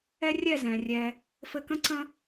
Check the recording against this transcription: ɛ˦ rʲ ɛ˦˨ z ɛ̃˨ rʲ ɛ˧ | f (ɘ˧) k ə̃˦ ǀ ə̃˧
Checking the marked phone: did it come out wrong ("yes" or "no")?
no